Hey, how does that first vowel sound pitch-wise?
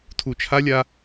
low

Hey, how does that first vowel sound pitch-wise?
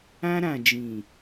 high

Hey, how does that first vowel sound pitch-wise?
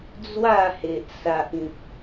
falling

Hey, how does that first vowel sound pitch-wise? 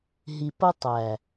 low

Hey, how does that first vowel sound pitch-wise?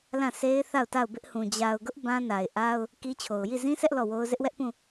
falling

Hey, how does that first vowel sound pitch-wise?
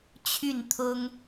falling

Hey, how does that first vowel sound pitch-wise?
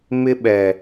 high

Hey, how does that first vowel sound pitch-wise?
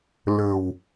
low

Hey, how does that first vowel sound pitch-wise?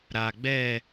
low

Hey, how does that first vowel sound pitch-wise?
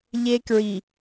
high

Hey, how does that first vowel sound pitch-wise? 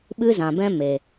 high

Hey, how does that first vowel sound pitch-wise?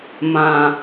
low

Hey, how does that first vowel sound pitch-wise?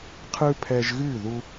high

